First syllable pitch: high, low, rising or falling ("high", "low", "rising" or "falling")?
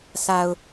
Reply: low